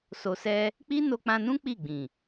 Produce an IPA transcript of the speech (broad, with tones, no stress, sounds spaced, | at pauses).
s o˧ s ɛ˦ | k͡p i˦ n o˧ k͡p ã˧ n ũ˦ k͡p i˦˨ ɡ͡b ĩ˨